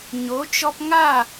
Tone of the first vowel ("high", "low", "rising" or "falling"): rising